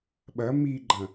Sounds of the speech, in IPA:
ɓ ɐ m i ɡ͡ǃ ɐ̃

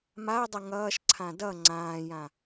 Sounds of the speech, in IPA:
m a ʊ̯ dˤ ə ŋ ʌː ʃ ǀʰ ã d ʌ ŋ͡ǀ ãː j ã

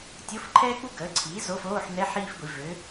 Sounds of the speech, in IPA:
tʲ o˧˥˧ f ǃʰ ɛː˥ k͡p u˥ ɡ əː˩˥ ǀʰ iː˩˥ z o˧˥˧ f oː˧˥˧ ħ n̪ ɛ˧˥˧ ħ iː˥˧ f ɡʷ i˩˧ v ø˩˥

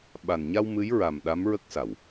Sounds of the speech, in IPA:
ɓ a˨˩ n ɲ a˧ w m ɨ˧˥ j ɹ a˨˩ m ɗ a˧˥ m ɹ ə˦˥ k̚ s a˨˩˨ w

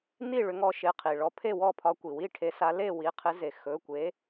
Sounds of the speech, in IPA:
n i˥˩ ɭ ʏ˨˦ ŋ ɔ˨˦ ʃ ɪ˩˧˩ qʰ i˩ ɭ ɔ˨˦ pʰ e˥˩ w ɔ˥˩ pʰ ɒ˨˦ kʷ i˩ w i˥˩ ʈʰ e˨˦ s a˨˦ l e˥˩ w i˩˧˩ qʰ ɪ˨˦ z e˩ x ɵ˩˧˩ kʷ e˨˦

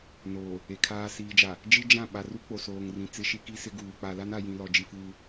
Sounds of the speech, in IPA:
n oː˨ | e˨ kʰ aː˨ s iː˨ d͡ʒ a˨ | d͡ʒ i˦ d͡ʒ ã˦˨ ɓ a˨ r u˦ k͡p o˨ s oː˨ ŋ r ĩ˨ t͡s ɪ˦ ʃ i˦ k i˦ s ɪ˦ ɡ uː˨ k͡p a˨ l a˦ n a˨ j ĩ˨ l ɔ˨ d͡ʒ i˦ f uː˦

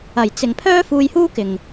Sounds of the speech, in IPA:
ɐ˨˩ j t͡s ɪ˨˩ ŋ pʰ œː˥ f uː˧ j h uː˥ k ɪ˨˩ ŋ

